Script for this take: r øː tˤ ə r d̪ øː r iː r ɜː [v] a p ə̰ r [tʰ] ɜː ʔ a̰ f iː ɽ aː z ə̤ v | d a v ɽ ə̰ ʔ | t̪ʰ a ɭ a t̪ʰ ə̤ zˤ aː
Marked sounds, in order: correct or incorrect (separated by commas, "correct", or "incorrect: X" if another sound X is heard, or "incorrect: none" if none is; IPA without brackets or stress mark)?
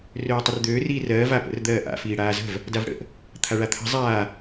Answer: correct, incorrect: d̪